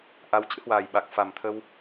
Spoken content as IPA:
ʔa˨˦wt͡ɕɨ̰˧˥hwaː˨˩j ɓa˨˩k̚fa˨˩mt̪ʰə˧w

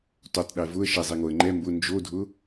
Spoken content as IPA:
totˤɗɛ vʊə̯ ʃɛzˤɛŋoə̯ ŋ͡ǃɛ mbʊ nd͡ʒodʱʊ

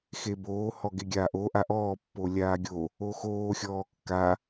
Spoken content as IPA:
xeboː hɔɡeɡʲaːʔo ʔaʔɔː pːolʲaːɡʲo | oxoː xʲɔːkːa

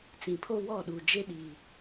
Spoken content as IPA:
t͡sĩ˨pʰo˦wɔ˦˨ɗuː˨ d͡ʒe˦ɗiː˨

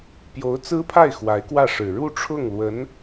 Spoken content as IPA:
pjo˧˥ʊ̯t͡sɹ̩˥pʰa˥˩ɪ̯ xwa˧˥ɪ̯kwä˥˩ʂɻ̩˨˩ ɻu˥˧ʈ͡ʂʰʊ˥˩ŋlwə˧˥n

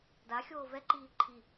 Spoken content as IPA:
da xʲoːvɛǃiː ǃʰi

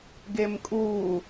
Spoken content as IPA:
ɡemkʼu

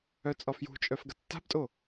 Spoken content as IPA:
œt͡sʼɒfjṳt͡ʃʼœf ɡɐtːa̤btʼo

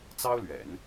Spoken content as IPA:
t͡sɑ˥ʊ̯lɥɛ̰˨˩˦n

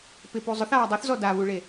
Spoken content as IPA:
pɪpu zˤʊθaː dˤoθzɔ daβuɭe

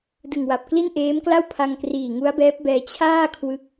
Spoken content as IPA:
dɯ˨˩ŋwa˨˩p̚kli˥˩n ʔeː˦˥mkla˥˩wpʰa˧ŋ kriː˨˩ŋu˦˥a̯bɛː˦˥p̚bɛː˧ t͡ɕʰaː˥˩kʰwɯ˦˥k̚

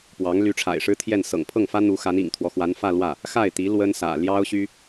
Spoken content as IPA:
pwɑ˧˥ŋ ly˧˥ʈ͡ʂʰa̰˨˩ɪ̯ʂɻ̩˥t̪ʰjɛ˥˩n sɤ̰˨˩ŋpʰɤ˥˩ŋfä˥ n̪u˧˥xa˧˥n ḭ˨˩ŋt̪ʰwɔ˦xwa˧˥nfä˥˧ lwä˥˩ | xa˥˩ɪ̯ t̪i˧˥ lwə˥nsä̰˨˩ ljɑ˥ʊ̯ɕy˥

